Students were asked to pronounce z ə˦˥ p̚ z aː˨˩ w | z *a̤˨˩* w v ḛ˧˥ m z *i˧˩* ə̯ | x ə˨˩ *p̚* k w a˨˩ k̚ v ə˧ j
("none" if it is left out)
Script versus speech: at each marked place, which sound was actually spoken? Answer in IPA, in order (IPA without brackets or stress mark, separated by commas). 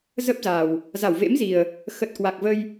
a˧˩, i˨˩, t̚